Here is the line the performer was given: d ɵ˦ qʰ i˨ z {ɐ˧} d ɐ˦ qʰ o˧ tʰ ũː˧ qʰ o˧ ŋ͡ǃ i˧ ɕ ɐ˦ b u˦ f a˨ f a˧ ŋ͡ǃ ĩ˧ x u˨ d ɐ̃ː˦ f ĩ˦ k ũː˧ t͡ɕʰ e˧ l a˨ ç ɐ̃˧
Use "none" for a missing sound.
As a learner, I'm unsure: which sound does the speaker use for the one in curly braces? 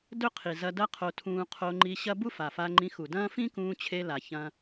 ɐ˧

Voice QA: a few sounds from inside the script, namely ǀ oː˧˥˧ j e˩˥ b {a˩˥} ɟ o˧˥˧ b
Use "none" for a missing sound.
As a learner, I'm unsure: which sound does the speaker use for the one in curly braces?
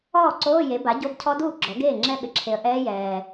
a˩˥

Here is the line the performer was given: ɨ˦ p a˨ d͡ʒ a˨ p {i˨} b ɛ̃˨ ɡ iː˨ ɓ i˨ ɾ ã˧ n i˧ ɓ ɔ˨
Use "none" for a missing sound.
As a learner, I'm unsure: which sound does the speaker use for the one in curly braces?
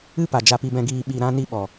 i˨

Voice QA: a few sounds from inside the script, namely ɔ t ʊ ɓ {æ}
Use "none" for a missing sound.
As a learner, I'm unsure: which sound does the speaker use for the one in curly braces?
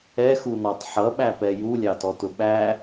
æ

